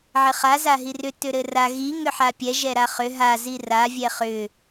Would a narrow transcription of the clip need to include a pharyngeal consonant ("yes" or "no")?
yes